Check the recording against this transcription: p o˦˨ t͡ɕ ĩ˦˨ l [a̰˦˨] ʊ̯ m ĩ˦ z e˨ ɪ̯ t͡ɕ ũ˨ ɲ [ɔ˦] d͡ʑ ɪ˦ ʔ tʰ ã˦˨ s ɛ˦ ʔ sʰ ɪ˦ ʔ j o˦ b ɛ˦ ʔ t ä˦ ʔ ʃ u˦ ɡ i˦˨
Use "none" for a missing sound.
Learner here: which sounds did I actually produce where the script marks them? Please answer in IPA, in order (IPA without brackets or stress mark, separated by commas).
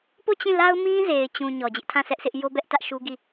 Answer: a˦, ɔ˨